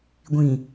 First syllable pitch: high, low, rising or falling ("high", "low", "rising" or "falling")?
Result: low